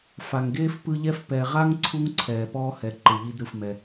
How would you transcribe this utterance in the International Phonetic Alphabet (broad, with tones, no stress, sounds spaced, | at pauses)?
f a˩ ŋ ɡ eː˥ f p ɯ˦ ʎ ɛ˥ f p ɛ˨ ʁ a˥ ŋ ǀʰ u˥ ŋ ǀʰ ɛː˩ p ɔː˦ h ɛ˩ ǃ ɯ˩ ʎ i˦ d ɾ ɯ˩ f m ɛ˩